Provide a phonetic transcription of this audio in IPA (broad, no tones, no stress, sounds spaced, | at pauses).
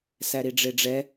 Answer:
s æ ɾ i ɖ͡ʐ e ɖ͡ʐ ɛ